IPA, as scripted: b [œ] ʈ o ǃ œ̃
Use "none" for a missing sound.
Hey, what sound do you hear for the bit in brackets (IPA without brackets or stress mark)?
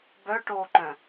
œ